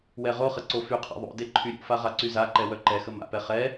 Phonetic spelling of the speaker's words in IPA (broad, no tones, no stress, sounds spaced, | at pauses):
w ɛ ʁ o χ ə ǀ o f y qʰ a̰ ðˤ o̰ d e ǃʰ y ɾʲ o̰ f a ʁ a ǀ y z a ǃ ɛ w œ ǃ ɛ x ə m a̰ p ɛ χ ɛ